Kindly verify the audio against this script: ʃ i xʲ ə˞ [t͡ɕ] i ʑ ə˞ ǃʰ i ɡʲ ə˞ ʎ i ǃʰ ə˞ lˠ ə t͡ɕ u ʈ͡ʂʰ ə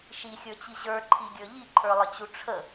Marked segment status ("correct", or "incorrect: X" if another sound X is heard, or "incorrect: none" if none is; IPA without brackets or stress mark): correct